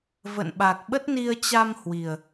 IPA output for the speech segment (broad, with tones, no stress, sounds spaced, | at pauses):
v ə̰˧˨ n ɓ a˨˩ k̚ ɓ ə˦˥ t̚ n i˧ ə̯ t͡ɕ a˧ m h w i˨˩ ə̯